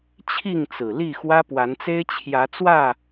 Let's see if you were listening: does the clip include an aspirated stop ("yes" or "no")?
yes